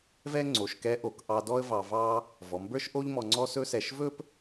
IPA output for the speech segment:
v ɛ˥ ŋ͡ǀ o˩˧ ʃ k ɛ˧˥ ʔ o˩˧ k ʔ ɑ˧ d ɔ˥ ə̯ v ɑ˧ v ɑ˥ | v ɔ˩˧ m b ə˞˥ ʃ ʔ o˥ ʎ m ɔ˧ ŋ͡ǀ ɔ˥ s ɵ˥ s ɛ˧ ʃ v ɵ˥ p

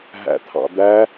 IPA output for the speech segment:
ɦ æ̰ t̪ʰ ɑ̰ d̪ æ

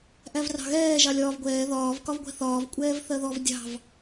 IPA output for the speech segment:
ʔ æ v r ɑ̤ ɣ ɛː ʒ ɑ lʲ ɒː v ɡʷ ɛː ð ɒː v k ɒ v ɡʷ ɛ̤ θ ɒː v kʷʼ ɛː v θ ɜ ð ɔ v dʲ ɑ̤ v

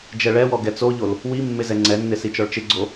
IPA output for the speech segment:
d͡ʒ ɛ ɭ ɛ w ɔ ɡ ɛ t͡s o ʎ o l | w i mː ɪ z ɛ ŋ͡ǀ ɛ nː ɪ s i t͡ʃ ɔ ɭ t͡ʃ ɪ ɡ͡ǀ o

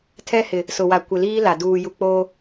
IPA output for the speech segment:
tʰ ɛ˦ h ɪ˨ | s ʊ˨ w a˨ kʷ ɪ˨ l iː˦ l a˨ d uː˨ j u˨ k͡p oː˦

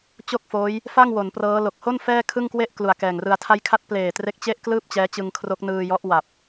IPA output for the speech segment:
t͡ɕ o˥˩ k̚ f oː˦˥ j | f a˥˩ ŋ w o˩˦ n p r ɤː˦˥ l o˨˩ k̚ h o˥˩ n f ɛː˥˩ kʰ ɯ˥˩ ŋ k w e˥˩ ʔ k l u˨˩ a̯ k ɛː˨˩ ŋ r ɯ˧ a̯ tʰ a˥˩ j kʰ a˦˥ t̚ p l eː˨˩ t r e˦˥ k̚ t͡ɕ e˥˩ ʔ k l ɯː˥˩ p̚ t͡ɕ ɛː˦˥ t͡ɕ ɯ˧ ŋ kʰ r o˦˥ k̚ n ɯː˧ j ɔ˦˥ ʔ w a˨˩ p̚

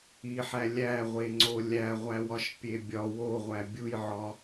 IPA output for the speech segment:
i ħ æ lʲ æ ʁʷ e ŋ͡ǀ o lʲ æ ʁʷ æ w ɒ ʃ pʲ e bʲ ɒ w o ʁʷ æ bʲ u j ʕ ɒ

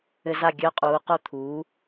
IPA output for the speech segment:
ɘ˧ z a˥˩ ɡʲ œ˧˥˧ qʼ uː˩˥ q o˥˩ t̪ʰ uː˩˥

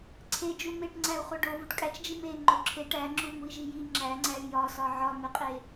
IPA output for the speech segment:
ǀʰ e d͡ʒ u m e ʈ ŋ͡ǀ æ u̯ χ o ɖ o v u ʈ kʼ æ t͡ʃ d͡ʒ i m e ŋ͡ǃ o ǁʰ e ʈ æ ŋ͡ǁ u m u i̯ ʒ i j i ŋ͡ǁ æ ŋ͡ǀ æ y̯ j ɒ s ɒ ʕ ɒ m e qʼ e

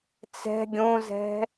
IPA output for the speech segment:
t͡s ɛ̤ ɡʲ õ z ɛ̤

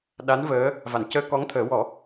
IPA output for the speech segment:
ɗ a˧˥ n v əː˧˥ | v a˨˩˨ n c əː˧ k ɔ˧˥ ŋ t̪ʰ əː˨˩˦ w ɔ˨˩˦

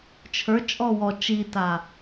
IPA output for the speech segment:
t͡ʃʰ ə˞ t͡ʃʼ ɔ w ɔ t͡ʃ i t a

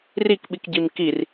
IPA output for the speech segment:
r i k ɓ i k ɟ i m k i r

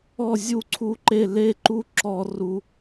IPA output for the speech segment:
ɔ˥˨ zʲ u˥˨ ǀʰ u˦ ǃ e˥˨ l e˦ ǃ u˦ ǁ ɔ˦ r u˦

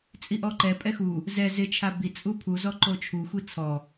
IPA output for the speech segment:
t͡sʼ i ʔ ɔ ǃ ɛ pʼ ɛ x u | z ɛ z ɪ t͡ʃʰ a b i t͡sʼ u pʰ u z ɔ ǃ o t͡ʃʰ u xʷ i t͡sʰ ɔ

